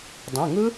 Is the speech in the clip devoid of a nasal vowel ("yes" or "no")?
no